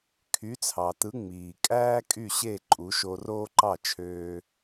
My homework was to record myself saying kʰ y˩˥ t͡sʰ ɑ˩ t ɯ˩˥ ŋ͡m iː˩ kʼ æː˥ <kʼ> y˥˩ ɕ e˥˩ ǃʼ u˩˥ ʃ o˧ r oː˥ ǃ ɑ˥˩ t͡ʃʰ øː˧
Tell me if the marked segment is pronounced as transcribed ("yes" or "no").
yes